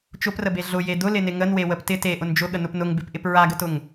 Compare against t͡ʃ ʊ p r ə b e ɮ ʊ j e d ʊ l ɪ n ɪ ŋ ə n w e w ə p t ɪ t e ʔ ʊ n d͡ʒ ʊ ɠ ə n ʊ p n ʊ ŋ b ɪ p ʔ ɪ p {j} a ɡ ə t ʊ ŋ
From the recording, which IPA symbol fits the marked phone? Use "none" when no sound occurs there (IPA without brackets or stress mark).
ɹ